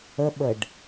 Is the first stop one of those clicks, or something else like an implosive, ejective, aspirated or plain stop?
implosive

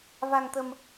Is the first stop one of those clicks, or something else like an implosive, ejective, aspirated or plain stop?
plain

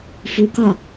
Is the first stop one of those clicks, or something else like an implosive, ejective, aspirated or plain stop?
plain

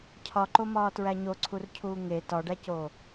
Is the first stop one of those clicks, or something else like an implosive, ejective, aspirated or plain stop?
aspirated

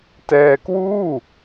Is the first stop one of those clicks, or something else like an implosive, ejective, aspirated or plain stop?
plain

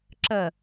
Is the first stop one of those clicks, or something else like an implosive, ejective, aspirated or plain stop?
click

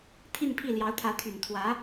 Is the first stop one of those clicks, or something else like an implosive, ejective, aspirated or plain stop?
aspirated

